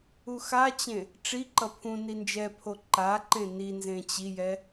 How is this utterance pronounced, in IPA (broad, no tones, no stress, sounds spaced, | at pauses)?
u x a t͡ɕ ẽ | ʈ͡ʂ i ǃ ʌ pʰ ũ n i n d͡ʒ ɛ pʰ o ǃ a ǃ ẽ n i n z ẽ t͡ɕ i j ɛ